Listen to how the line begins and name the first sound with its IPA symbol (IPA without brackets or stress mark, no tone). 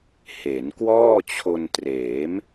h